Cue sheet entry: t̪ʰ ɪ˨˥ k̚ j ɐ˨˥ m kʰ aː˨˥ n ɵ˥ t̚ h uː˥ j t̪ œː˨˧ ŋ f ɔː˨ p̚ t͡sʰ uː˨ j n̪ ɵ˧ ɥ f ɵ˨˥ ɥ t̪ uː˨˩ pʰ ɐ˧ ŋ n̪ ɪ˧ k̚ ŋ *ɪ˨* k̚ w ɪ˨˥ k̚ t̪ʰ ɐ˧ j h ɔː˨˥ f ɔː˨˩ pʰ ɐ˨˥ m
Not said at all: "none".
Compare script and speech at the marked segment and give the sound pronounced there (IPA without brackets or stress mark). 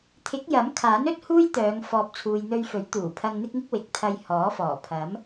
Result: ɪ˧